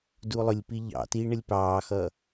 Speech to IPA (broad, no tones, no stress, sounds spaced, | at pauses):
d u lˠ ʊ lʲ p i ʎ ɑ̰ t i ɳ ə lʲ p ɑː x ʌː